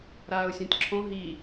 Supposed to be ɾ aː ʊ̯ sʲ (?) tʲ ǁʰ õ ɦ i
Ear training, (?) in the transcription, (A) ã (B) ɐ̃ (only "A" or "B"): A